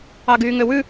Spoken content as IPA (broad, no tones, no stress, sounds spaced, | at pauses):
ɑ ɡ yː ŋ ø w ʉ